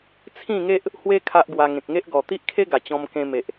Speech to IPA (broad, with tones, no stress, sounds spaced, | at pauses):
t͡sʰ ĩ˥˧ ŋ e˦ ʔ | h w e˦ kʰ a˦ ʔ ɡ w a˧ ŋ ẽ˨ k̚ ŋ e˦ ʔ ɡ ɔ˨˩ t̪ i˦ ʔ kʰ e˦ ɡ a˨˩ t͡ɕ ɔ̃˧ m k ẽ˧ m e˨ ʔ